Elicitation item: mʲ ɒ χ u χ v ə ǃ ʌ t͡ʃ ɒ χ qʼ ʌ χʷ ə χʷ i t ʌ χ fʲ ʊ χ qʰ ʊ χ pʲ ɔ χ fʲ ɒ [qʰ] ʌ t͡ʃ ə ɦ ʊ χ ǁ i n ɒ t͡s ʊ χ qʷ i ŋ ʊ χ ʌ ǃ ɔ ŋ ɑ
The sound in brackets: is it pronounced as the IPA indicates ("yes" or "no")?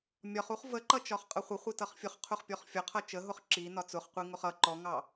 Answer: yes